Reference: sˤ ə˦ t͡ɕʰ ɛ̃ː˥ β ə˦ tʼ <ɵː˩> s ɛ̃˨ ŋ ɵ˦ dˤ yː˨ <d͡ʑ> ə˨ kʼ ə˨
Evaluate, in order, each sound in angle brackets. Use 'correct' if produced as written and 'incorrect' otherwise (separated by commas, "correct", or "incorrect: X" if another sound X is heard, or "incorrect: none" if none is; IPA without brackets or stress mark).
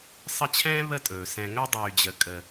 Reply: correct, correct